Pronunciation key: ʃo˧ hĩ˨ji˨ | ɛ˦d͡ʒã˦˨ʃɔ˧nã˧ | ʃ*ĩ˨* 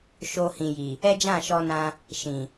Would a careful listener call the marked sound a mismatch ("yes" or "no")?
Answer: no